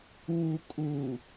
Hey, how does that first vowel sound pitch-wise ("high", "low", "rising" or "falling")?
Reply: low